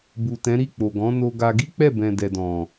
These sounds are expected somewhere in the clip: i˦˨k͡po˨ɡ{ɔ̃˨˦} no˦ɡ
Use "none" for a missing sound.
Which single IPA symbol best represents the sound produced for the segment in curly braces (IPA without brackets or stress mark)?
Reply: ɔ̃˨˦